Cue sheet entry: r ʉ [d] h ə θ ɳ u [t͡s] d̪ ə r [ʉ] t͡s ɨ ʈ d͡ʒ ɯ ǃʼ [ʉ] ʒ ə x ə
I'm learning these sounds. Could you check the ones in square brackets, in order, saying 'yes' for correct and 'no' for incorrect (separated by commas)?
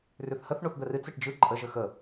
no, no, no, no